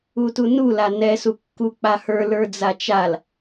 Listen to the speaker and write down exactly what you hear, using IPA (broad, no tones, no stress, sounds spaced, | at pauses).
u t u n u l a n ɛ s u kː u k͡p a h ə˞ l ə˞ d͡z a t͡ʃ a l